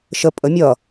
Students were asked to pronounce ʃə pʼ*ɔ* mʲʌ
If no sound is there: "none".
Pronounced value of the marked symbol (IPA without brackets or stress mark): ə